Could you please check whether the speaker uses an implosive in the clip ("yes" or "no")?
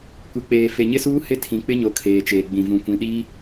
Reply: yes